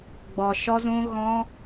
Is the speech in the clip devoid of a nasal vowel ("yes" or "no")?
no